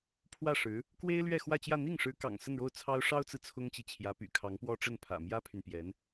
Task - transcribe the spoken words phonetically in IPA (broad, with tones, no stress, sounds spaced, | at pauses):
pʰ w ä˥˩ ʂ ɻ̩˧˥ | k w e˥ ɪ̯ l ɥ ɛ˥˧ x w ä˥˧ t͡ɕ j ä˥˧ n̪ i˥˩ ŋ ʂ ɻ̩˧˥ k ɑ̰˨˩ ŋ s ə˥˧ n ɻ o˥˩ ʊ̯ t͡sʰ ɑ˥ ʊ̯ ʂ ɑ˥ ʊ̯ t͡s ɹ̩˨ t͡sʰ ʊ˥ ŋ t͡ɕ i˨ t͡ɕʰ j ä˧˥ p y̰˨˩ kʰ ɑ˧˥ ŋ p w ɔ˥ ʈ͡ʂ ə˥˩ n pʰ ä̰˨˩ m j ä˥ pʰ y˨ n p j ɛ˧˥ n